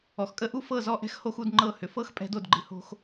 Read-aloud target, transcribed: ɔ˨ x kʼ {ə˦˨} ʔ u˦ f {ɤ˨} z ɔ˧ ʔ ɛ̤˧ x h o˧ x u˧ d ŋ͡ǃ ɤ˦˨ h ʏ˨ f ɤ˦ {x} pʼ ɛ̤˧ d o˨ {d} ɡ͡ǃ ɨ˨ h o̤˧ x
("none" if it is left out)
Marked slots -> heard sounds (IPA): ə˦˨, ɤ˦˨, x, d

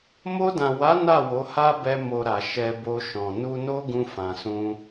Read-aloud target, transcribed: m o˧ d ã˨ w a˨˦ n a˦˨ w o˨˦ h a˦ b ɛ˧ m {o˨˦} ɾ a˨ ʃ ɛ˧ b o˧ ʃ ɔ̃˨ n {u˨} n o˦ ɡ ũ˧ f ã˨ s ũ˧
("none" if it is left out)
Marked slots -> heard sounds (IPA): o˨, u˧

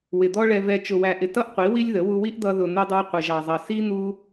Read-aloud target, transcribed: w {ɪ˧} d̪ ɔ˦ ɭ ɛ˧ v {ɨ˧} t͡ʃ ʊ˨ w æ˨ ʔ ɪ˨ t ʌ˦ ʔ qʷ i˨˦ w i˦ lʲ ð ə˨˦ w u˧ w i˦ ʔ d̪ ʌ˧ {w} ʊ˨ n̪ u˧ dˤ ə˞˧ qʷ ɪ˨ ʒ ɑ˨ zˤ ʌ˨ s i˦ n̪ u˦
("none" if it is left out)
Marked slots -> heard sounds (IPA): ɪ˨, ɛ˧, ð

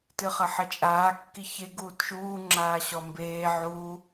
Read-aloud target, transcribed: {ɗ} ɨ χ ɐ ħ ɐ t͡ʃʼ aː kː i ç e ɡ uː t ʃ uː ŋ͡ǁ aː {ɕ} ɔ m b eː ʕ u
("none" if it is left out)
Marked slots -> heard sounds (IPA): t, ɕ

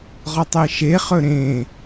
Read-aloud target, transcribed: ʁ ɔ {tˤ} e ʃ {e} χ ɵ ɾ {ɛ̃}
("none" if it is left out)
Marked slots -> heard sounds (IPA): tˤ, e, ẽ

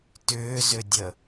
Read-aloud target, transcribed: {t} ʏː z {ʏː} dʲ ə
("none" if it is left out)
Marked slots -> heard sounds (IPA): t, ʏ

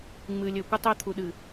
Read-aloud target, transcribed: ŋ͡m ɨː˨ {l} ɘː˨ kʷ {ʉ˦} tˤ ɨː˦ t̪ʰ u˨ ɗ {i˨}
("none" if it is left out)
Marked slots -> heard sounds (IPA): lʲ, ɘ˦, ɨ˨

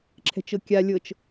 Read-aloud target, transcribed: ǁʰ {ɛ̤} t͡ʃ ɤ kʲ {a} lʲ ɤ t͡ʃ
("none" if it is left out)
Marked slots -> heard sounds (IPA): ɛ̤, a

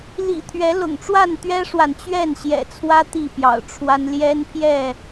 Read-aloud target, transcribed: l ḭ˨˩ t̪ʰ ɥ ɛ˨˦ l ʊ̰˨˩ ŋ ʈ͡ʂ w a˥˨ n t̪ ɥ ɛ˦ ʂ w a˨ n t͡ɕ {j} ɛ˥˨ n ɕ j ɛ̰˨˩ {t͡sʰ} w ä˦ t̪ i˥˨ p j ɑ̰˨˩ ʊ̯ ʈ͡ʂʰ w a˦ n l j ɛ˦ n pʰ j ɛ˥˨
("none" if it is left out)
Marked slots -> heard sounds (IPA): ɥ, t͡sʰ

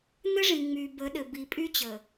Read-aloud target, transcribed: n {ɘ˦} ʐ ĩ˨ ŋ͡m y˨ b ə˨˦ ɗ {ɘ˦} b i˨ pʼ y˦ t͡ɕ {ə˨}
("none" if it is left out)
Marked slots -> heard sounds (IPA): ɘ˦, ɘ˨, ə˨

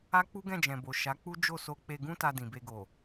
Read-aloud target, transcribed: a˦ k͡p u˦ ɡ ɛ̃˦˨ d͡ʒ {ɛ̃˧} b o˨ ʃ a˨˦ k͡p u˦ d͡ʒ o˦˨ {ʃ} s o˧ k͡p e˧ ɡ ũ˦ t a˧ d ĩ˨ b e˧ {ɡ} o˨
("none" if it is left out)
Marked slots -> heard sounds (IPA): ɛ̃˨, none, ɡ

